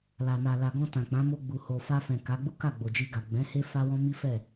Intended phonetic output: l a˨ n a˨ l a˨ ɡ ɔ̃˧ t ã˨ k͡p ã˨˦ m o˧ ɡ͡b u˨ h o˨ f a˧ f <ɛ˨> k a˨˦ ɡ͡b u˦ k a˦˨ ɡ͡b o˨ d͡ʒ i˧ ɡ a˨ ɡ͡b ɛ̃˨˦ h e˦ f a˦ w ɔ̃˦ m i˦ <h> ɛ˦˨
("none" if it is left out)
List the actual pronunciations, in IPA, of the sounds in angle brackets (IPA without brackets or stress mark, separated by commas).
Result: ɛ̃˨, f